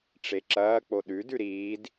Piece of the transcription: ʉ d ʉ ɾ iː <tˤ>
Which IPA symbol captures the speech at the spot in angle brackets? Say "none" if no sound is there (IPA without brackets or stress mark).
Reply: d